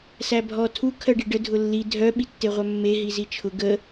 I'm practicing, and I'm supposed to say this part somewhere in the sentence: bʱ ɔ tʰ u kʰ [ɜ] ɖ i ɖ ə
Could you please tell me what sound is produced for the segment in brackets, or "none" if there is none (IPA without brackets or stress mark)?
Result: ɜ